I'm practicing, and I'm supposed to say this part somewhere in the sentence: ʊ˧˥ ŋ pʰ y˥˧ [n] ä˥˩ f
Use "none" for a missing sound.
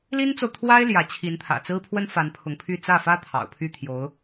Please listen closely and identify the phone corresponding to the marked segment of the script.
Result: t͡s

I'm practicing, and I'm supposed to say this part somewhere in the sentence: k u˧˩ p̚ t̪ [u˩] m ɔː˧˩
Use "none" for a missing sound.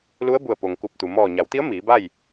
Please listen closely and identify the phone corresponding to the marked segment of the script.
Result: u˩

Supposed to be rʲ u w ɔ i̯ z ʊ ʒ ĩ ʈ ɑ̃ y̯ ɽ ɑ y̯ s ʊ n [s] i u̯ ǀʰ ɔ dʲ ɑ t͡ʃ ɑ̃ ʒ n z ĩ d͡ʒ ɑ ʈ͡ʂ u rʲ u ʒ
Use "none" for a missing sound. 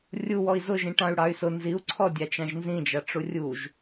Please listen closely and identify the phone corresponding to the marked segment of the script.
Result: z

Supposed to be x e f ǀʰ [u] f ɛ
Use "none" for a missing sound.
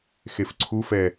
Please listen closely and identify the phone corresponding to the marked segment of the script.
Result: u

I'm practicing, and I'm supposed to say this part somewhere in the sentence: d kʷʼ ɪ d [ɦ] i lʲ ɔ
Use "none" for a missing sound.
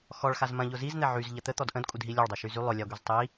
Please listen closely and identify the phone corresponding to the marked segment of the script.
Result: ɦ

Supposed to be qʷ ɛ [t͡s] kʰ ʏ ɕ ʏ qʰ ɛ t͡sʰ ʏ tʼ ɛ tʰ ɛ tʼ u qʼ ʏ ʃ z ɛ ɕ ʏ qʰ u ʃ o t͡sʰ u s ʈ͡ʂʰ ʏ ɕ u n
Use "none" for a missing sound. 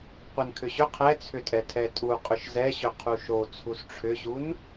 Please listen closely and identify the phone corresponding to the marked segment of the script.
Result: n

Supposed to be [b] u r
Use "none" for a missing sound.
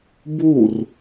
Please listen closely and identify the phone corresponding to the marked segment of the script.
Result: b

